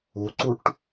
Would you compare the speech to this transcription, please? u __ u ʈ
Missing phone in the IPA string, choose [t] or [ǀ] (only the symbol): ǀ